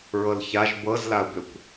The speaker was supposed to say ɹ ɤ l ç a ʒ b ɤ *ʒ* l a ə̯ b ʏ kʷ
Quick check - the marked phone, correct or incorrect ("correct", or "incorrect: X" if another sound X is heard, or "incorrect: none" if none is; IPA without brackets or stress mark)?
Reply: incorrect: z